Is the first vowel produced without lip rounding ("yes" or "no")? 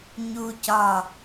no